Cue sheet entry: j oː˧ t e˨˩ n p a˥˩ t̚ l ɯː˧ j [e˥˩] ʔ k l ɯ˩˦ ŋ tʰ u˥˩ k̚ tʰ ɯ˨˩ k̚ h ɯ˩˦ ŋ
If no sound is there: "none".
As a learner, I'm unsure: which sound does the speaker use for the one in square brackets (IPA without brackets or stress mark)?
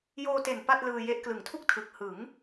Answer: e˦˥